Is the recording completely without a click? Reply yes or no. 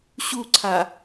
no